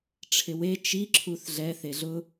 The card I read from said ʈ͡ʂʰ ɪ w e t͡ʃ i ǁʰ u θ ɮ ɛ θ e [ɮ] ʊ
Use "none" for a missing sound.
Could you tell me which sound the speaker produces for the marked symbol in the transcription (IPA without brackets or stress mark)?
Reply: ɮ